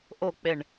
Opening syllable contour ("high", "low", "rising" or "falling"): falling